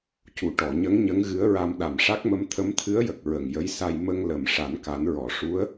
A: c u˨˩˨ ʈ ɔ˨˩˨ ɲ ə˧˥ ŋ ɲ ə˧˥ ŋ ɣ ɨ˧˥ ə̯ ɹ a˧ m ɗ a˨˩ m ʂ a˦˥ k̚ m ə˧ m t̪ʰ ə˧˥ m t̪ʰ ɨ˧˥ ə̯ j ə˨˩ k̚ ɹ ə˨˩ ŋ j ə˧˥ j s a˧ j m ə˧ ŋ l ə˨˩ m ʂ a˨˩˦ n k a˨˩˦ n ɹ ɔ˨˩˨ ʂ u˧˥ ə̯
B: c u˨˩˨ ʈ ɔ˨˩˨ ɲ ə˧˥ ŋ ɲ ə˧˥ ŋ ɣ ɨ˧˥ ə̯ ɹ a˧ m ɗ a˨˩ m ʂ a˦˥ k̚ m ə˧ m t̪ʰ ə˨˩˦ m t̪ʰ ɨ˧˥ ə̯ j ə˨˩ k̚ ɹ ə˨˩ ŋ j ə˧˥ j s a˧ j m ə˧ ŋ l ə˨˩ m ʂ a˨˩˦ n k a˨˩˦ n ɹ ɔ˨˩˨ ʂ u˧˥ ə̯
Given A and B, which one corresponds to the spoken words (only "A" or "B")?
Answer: A